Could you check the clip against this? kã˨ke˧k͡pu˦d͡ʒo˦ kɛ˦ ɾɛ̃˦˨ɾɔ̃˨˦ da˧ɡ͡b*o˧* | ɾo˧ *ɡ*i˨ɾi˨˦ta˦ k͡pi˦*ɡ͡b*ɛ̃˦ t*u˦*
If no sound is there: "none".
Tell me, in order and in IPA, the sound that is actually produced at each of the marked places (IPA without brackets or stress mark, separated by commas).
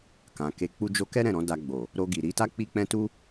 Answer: o˨, ɡ, k͡p, u˦